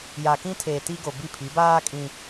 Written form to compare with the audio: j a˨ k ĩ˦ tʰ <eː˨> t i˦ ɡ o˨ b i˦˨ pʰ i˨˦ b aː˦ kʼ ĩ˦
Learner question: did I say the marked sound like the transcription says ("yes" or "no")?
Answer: yes